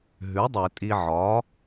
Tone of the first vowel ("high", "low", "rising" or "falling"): rising